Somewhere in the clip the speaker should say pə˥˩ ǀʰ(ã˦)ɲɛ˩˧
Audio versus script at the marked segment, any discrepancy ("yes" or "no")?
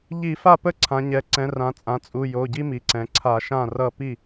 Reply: yes